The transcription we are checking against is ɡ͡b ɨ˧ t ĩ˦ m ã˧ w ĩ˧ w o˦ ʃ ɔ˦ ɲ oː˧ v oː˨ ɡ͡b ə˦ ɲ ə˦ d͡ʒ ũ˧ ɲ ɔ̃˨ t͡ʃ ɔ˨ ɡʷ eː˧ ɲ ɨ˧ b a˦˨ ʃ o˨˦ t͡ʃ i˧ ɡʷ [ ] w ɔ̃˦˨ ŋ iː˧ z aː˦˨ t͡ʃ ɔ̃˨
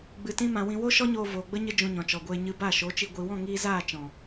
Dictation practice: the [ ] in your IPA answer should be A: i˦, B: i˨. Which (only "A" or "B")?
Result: B